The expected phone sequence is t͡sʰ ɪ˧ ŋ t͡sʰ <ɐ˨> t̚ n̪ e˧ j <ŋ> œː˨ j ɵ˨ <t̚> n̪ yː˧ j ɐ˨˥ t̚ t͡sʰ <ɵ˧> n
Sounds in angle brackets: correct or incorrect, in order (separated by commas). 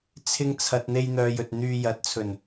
correct, incorrect, correct, incorrect